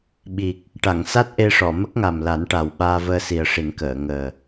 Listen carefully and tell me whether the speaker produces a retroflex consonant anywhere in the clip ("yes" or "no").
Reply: yes